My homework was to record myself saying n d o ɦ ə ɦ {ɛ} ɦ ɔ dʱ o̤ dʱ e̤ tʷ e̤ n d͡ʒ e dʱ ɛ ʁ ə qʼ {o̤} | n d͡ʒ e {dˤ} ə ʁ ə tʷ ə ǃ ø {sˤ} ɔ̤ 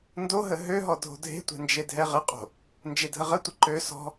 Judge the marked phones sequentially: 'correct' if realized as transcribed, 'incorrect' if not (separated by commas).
incorrect, correct, incorrect, incorrect